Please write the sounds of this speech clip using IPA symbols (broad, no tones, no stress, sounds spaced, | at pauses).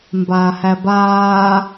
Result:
m b aː h æ b aː